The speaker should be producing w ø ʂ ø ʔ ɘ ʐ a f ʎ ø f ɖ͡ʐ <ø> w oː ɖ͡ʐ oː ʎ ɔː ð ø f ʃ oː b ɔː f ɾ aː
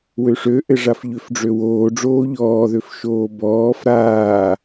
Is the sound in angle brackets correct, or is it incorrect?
correct